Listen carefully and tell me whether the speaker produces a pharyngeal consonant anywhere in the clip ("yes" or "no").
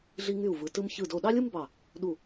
no